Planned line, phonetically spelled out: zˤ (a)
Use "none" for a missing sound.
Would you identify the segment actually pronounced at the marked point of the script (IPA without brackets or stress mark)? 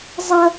ʌ